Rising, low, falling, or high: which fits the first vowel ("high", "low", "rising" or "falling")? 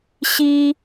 high